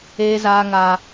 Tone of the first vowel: high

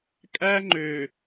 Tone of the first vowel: high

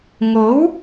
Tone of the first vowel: rising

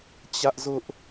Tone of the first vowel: high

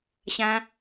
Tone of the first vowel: high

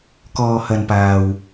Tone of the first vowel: low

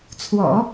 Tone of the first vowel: low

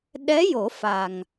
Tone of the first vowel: rising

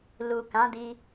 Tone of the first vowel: low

